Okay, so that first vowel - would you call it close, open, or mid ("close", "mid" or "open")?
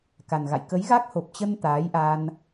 open